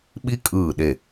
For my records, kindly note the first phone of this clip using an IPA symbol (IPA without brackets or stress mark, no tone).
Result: ɓ